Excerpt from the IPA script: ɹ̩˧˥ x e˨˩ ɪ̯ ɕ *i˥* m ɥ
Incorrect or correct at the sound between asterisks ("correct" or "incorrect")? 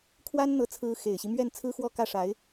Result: incorrect